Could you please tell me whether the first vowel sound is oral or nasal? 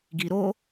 oral